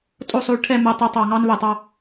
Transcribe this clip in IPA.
tʼo˦˨sˤo˦˨ɭʈʰɛ˦˨ mɛ˦˨tˤi˦˨tˤɑ˦˨ ŋɑ˥nβɛ˦˨tˤɑ˥

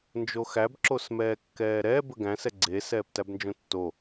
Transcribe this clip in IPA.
nd͡ʒoxæb ǁosmɛːkːɛːɾɛ bəɡæ̃sɛ ɡ͡ǀe sɛːptæbnd͡ʒõtːo

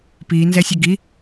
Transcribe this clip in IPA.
pi nzɛsʲəɡi

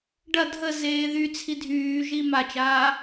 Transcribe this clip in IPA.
ɖɐ dʱə zeːðy t͡sʰidʱyːʒi mat͡ʃaː

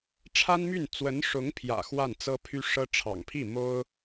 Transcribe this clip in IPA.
ʈ͡ʂʰa˥nmy˥˩n t͡swə˧˥nʂʊ˧˥ŋpʰjä̰˨˩ xwa˥˩nt͡sɤ˥pʰy˥ ʂɤ˥ ʈ͡ʂʰɑ̰˨˩ŋpʰi˥˩ mo˥ʊ̯

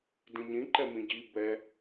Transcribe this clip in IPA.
dĩɲĩǃɛ mĩɟi bɛ

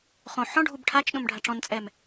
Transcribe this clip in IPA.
χõ ħɔ̃ɖʱub ʈʰat͡ʃ ɗõmɖʱaʈ͡ʂɔ̃nt͡sʼɛm

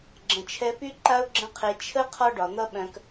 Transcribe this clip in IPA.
ɡ͡ǁə̃˨t͡ʃʰɛ˧py˦ǃa˦ʊ̯ ɡ͡ǁə̃˦qʰe˧ t͡ʃʰə˦ qʰɒ˦ɖɒ˨n̪ʌ˦ɓœ̃˧k

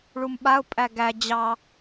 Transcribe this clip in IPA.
ɭumɓaʊ̯pʼæ ɡæ d͡ʑɑ

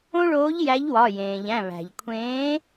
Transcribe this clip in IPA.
õ˦ɭoː˨˥ʎ jæ˨˥ʎwɒ˩˧˩jẽː˩ʎæ̃˩˧˩ βæ̤˩ʎkʷʰẽː˨˥

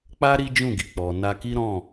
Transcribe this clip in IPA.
k͡pa˦ ɾi˦d͡ʒũ˦˨ɡi˨k͡pɔ˨ na˧ki˦ ɾɔ̃˦˨

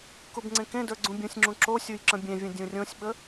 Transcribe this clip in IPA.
kubŋ͡ǀẽkẽdə˞ ɡ͡ǀũbʲũsʲŋ͡ǁũ ǁosʲuj ǁə̃bʲẽvʲə̃ dʲũrʲõsʲɓə

